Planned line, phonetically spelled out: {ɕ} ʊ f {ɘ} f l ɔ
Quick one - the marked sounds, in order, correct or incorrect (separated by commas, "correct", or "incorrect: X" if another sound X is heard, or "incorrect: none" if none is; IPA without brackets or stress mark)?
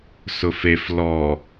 incorrect: s, incorrect: e